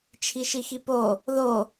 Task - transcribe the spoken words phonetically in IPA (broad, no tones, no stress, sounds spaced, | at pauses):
t͡ʃʰ i ʃ i x i p o | ð o